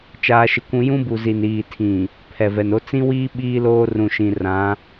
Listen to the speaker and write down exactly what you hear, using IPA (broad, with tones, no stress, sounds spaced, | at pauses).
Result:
t͡ʃ aː˦ ʃ ɪ˦ kʷ ũ˦ j ũ˦ b u˨ z i˨ n iː˨ tʰ ĩ˨ | pʰ ɛ˨ v ɛ˨ n o˦ t͡s ĩ˦ w iː˦ ɓ iː˦ l oː˦ r ũ˨ ʃ ĩ˨ r ã˨˦